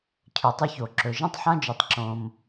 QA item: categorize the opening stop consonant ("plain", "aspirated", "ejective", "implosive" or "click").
aspirated